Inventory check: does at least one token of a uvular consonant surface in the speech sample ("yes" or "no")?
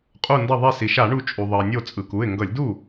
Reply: yes